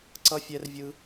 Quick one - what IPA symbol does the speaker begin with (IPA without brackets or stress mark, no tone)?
ǀ